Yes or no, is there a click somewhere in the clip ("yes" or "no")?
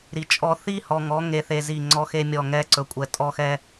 yes